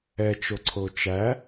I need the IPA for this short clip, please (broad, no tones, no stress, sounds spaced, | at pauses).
ɛ t͡ʃ o ǀʰ o t͡ʃ æ